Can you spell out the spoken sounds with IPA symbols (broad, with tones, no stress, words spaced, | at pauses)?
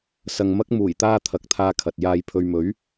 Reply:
sɐ˨ŋmɐ˥k̚ muː˨˩jt̪aː˥ t̪ʰɐ˨˥k̚t̪ʰaː˧kʰɐ˨t̚ jaː˨j pʰɵ˨ɥmɵ˨˥ɥ